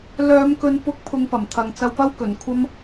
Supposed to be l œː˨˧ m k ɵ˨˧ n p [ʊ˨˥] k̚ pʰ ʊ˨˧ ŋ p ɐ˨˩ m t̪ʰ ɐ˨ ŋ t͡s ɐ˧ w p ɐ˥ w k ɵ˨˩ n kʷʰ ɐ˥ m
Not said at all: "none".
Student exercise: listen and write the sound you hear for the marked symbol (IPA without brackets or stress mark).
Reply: ʊ˨˥